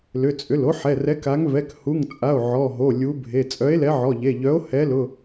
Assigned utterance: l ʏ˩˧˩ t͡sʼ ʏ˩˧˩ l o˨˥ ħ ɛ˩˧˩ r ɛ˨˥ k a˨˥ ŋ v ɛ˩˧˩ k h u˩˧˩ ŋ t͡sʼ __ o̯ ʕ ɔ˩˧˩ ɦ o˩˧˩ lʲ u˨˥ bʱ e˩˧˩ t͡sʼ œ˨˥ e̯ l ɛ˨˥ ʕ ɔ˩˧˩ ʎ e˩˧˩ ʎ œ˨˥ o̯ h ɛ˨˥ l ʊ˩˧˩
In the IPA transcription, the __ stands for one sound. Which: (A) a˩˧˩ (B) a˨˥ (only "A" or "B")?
A